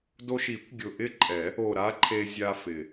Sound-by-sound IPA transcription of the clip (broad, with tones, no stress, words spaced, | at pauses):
do˧ʃi˨˩˦kʷ ɡʲʊ˨˩ʔɪ˥˧ǃʼɛ˨˩˦ | o˨˩ ɾa˦˥ǃʰe˧ zʲa˧fɪ˨˩